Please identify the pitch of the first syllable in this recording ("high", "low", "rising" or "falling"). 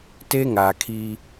high